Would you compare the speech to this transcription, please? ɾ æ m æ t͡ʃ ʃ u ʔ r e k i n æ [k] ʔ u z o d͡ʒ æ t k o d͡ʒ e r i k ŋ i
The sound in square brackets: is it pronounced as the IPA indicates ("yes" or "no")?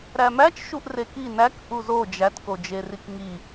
yes